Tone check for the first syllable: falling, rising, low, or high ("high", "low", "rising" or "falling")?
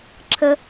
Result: high